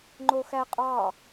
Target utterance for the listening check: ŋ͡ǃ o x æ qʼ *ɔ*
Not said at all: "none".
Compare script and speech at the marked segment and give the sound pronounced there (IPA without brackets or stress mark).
ɑ